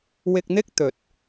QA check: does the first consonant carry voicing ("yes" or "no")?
yes